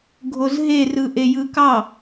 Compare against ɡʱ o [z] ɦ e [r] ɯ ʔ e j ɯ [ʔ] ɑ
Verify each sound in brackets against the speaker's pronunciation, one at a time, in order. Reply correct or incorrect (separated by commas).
correct, correct, incorrect